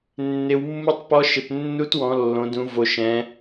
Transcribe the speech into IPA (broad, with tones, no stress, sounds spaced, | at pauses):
nː ɪ˩˧ w mː u˧˥ tˤ p ɔ˧˥ ʃ ɪ˩˧ p nː u˧˥ t w ɔ̃˩˧ lː õ˩˧ d ũ˩˧ v o˩˧ ʃ ɛ̃˩˧